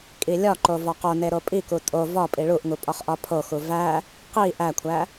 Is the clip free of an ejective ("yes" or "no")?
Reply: no